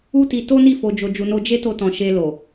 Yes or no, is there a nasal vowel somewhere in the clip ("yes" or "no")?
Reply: yes